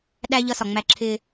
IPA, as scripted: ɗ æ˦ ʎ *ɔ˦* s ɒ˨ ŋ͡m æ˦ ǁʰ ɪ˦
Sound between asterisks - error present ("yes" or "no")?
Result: yes